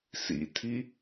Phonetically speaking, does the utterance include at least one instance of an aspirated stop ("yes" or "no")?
yes